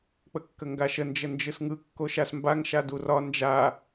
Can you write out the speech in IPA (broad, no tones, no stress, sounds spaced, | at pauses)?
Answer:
k͡p ə kː ə ŋ ɡ a ʃ ə n d͡ʒ ə n d͡ʒ ɯ s ŋ ɯ kː o ʃ a s m b a ŋ ʃ a d u r ɒ n d͡ʒ a